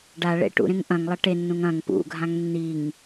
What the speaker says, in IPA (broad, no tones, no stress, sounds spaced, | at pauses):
ɖ a ɭ ḛ ʈ ṵ ɾ ẽ ŋ ʔ ɐ̃ ŋ lˠ ɐ ʈ e nː ũ ŋ ɐ̃ ŋ p ṵ ɡʱ ã ŋ nː i ŋ